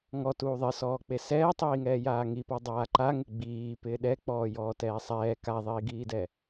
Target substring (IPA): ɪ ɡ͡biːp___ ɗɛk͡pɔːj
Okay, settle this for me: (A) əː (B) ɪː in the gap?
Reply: B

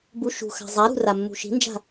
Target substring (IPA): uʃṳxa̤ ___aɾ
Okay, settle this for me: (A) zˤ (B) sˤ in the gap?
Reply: A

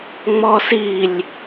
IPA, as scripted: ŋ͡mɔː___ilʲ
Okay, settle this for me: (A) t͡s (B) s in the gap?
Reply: B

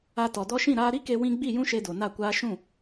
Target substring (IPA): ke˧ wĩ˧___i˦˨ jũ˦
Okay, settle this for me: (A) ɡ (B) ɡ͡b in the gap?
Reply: B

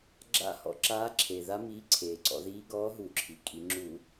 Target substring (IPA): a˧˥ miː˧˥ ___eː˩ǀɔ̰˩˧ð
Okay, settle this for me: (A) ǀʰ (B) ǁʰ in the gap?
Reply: A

